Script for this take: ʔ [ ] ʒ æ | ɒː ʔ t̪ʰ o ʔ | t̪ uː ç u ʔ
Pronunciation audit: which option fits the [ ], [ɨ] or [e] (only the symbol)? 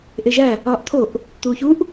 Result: e